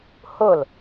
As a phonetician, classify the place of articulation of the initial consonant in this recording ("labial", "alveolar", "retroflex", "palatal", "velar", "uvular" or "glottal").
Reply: glottal